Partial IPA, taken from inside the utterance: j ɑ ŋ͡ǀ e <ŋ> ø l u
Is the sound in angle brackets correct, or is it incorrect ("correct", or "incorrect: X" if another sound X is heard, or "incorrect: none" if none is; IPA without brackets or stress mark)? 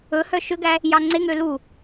correct